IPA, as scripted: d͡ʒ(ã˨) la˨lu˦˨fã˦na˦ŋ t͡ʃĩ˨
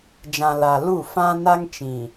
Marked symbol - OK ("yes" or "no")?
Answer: yes